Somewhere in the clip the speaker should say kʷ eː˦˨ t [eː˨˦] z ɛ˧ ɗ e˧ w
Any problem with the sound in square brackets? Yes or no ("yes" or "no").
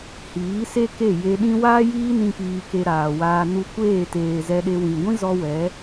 yes